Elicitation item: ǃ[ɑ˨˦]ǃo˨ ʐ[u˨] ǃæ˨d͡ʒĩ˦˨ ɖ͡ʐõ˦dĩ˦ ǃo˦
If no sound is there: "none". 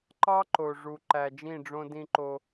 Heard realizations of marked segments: ɑ˦, u˨

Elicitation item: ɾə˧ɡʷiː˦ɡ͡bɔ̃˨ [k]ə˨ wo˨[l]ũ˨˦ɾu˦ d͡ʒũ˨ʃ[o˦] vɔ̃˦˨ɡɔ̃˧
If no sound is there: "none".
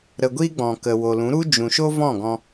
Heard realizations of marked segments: k, l, o˦

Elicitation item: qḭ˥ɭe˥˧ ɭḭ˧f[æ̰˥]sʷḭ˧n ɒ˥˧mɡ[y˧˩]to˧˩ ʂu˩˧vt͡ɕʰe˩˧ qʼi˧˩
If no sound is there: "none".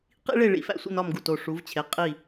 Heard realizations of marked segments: æ̰˥, u˧˩

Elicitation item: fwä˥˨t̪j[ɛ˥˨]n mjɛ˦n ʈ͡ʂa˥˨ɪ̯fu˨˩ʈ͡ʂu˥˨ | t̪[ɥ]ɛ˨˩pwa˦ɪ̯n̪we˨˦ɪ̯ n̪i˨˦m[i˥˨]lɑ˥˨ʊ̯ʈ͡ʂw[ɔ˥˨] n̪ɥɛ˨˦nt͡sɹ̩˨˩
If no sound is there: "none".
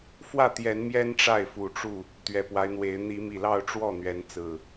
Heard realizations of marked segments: ɛ˨˦, ɥ, i˨˩, ɔ˥˨

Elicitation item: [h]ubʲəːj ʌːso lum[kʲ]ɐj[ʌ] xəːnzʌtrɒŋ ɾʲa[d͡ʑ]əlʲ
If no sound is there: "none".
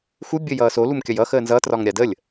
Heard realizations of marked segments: x, kʲ, ʌ, d

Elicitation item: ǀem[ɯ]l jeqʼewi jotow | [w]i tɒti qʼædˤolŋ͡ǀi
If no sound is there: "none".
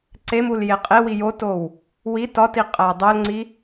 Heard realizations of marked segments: u, w

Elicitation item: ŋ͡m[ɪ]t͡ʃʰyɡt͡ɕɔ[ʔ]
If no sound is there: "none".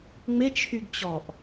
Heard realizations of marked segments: ɪ, ʔ

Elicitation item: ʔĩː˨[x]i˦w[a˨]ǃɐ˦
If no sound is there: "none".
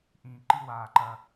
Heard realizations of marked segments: ǃ, aː˨

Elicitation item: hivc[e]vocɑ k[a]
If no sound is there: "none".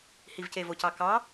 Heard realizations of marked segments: e, ɑ

